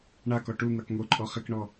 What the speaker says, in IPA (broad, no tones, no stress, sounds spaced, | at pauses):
ɳ a k ɔ ʈ u n̪ a k ŋ o ǃʼ ɔ χ ɪ k ɳ ɔ